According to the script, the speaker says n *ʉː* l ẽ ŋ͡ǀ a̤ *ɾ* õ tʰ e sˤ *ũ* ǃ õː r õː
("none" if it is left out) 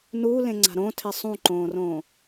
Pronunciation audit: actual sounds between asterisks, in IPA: uː, ɾ, ũ

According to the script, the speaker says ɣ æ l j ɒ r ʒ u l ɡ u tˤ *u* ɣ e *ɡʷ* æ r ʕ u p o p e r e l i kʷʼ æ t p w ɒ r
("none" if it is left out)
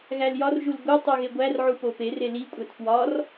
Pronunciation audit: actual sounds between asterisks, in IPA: u, ɡʷ

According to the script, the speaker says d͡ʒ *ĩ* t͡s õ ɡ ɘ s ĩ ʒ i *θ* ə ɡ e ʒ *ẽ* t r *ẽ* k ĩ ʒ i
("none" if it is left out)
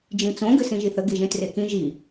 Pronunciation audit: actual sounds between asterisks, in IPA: ĩ, θ, ẽ, e

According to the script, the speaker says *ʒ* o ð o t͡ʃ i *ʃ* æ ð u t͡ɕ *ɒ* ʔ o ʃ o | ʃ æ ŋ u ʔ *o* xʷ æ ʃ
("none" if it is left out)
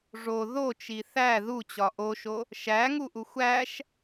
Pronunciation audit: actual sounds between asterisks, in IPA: ʐ, θ, ɒ, u

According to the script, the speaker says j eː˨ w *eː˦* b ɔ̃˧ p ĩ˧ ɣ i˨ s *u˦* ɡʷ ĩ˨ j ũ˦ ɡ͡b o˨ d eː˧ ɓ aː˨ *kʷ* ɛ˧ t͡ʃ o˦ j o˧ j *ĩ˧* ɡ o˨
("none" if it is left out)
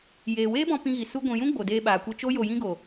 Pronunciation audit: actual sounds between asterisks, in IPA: eː˦, u˦, kʷ, ĩ˦

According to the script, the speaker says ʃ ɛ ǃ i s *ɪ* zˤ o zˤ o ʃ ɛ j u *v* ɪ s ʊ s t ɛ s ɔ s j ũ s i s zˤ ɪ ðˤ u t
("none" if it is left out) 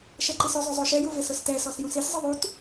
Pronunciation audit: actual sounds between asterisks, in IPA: ʏ, v

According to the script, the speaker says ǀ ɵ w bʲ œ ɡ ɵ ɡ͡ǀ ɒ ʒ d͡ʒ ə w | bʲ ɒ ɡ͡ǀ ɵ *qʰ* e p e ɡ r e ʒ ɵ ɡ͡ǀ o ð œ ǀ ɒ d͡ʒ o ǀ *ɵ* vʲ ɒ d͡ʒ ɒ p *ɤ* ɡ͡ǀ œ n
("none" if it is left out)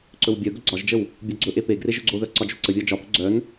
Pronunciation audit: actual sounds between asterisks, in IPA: ʔ, ə, ɵ

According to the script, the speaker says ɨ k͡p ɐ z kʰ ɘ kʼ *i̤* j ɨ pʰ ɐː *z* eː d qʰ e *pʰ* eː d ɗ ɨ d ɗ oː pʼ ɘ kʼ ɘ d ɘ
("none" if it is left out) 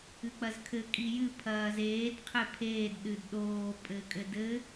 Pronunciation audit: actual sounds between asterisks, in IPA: i, z, pʰ

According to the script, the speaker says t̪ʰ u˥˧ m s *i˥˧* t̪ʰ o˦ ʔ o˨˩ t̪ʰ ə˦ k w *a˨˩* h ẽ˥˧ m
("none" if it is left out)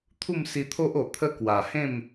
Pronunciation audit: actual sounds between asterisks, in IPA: i˧, a˨˩

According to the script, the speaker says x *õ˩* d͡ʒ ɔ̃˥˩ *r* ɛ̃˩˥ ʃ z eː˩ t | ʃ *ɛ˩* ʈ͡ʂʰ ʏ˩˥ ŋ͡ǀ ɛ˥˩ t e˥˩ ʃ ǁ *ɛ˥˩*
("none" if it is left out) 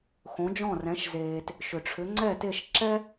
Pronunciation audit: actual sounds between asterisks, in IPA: õ˩˥, r, ʏ˩, ɛ˥

